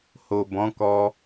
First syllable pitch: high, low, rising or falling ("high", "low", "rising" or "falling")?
low